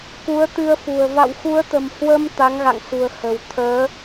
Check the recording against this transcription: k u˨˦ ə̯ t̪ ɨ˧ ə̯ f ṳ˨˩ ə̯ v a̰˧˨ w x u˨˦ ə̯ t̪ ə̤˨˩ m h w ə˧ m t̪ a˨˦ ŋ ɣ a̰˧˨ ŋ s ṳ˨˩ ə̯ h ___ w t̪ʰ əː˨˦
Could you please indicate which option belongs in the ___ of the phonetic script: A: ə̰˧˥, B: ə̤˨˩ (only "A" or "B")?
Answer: B